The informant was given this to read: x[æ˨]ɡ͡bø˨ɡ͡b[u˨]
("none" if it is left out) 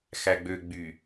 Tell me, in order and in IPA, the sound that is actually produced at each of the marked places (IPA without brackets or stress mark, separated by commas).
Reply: æ˨, y˨